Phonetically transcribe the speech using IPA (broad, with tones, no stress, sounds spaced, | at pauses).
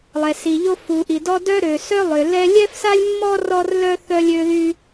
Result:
lˠ ɛ˩ s i˩ ʎ o˥ f u˩ ʔ i˩ d ɔ˥ d œ˥ ɾ ø˩ s œ˥ lˠ ø˩ l ɛ˥ lʲ ɛ˥ f s a˥ lʲ mː ɔ˥ r ɔ˥ r l œ˥ θ œ˥ lʲ ø˥ ð y˥